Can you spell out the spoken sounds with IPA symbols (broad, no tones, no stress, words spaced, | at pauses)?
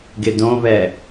ɡɪdõβɛ